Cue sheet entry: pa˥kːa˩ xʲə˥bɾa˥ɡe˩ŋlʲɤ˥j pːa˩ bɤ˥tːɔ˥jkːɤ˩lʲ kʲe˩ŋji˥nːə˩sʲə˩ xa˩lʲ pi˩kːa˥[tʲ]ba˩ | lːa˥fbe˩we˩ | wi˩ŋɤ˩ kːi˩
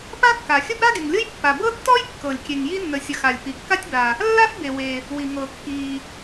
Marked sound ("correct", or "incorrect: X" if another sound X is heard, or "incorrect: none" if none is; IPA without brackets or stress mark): correct